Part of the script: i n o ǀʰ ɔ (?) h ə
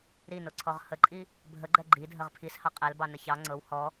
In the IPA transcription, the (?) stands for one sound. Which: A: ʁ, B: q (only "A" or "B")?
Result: A